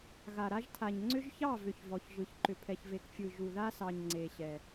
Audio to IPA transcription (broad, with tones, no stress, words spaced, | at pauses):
ɣa˨ɾa˦ʒtʰa˨ɲ ŋ͡ǀʏ˦ʒçɑ˦˨vʏ˨ç vɔ˨çʒɯ˨ç ǃʏ˨pʰɛ˨çve˨k fʲɯ˨ ʒu˨ða˦sɑ˨ɲ ŋ͡ǀe˨ɕɛ˨